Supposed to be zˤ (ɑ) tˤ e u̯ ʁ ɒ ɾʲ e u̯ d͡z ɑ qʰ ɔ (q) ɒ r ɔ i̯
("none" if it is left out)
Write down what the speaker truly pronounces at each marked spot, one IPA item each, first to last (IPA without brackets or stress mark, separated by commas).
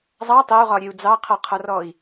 ɑ, qʰ